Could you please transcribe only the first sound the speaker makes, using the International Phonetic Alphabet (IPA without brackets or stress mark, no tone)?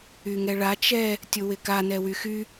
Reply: y